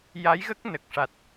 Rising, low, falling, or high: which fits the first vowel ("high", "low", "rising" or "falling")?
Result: rising